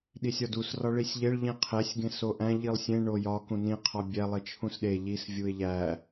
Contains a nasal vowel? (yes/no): yes